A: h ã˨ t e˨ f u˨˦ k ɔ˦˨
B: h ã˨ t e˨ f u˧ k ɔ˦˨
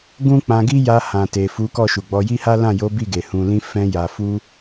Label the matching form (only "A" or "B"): A